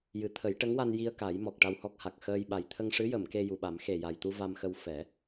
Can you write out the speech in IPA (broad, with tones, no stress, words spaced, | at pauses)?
jɨ˨˩˦ t̪ʰə˨˩˦jʈə˧˥ŋwa˧n ji˧ə̯ka˨˩˦j mɔ˨˩k̚ʈa˧whɔ˦˥k̚ ha˨˩k̚xəː˧j ɓa˨˩jt̪ʰə˧ŋʂɨ˧˥jə˨˩˨m ke˧ju˨˩ɓa˨˩˦m xe˨˩ja˨˩jt̪u˧ va˧mxə˧w fɛ˨˩˦